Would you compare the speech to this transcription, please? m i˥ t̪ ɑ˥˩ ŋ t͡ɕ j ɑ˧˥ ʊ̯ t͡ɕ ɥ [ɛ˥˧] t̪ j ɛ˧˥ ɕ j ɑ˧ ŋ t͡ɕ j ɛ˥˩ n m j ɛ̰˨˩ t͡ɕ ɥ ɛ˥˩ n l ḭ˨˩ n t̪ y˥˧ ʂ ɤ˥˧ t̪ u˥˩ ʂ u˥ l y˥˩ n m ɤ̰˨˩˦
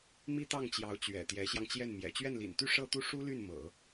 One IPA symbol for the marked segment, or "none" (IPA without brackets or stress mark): ɛ̰˨˩